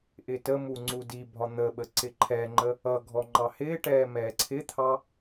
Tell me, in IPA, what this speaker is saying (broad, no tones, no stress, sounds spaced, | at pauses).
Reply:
ʔ ɪ t ə m u ŋ͡ǀ u d i bʱ ɒ n̪ ə ɓ ə ǀ ɪ ǃʰ ɛ ŋ͡ǃ ə | ʌ ɡʱ ɔ ŋ͡ǃ ɑ h ɪː ʈ ɛː m ɛː ǀʰ ɪ t̪ʰ ɑ